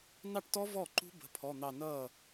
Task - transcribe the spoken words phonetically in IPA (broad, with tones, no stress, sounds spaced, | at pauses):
n ɑ˥˩ ʈ t ɔ˦˥ v ɔ˥˩ ǃ ṳ˦˥ b ə̤˩˧˩ pʰ ɔ˩˧˩ n̪ ɑ˧˩ n ʌː˥˩